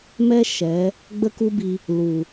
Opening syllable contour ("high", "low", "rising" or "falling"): high